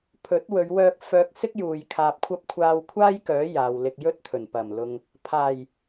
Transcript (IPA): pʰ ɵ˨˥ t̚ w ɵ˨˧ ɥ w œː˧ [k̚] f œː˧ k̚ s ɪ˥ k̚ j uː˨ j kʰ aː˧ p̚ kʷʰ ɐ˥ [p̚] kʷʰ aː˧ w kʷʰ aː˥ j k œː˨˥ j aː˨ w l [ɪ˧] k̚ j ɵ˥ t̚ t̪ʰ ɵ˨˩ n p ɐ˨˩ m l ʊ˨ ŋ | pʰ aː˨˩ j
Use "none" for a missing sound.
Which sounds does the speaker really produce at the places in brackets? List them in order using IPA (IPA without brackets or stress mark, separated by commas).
k̚, p̚, ɪ˧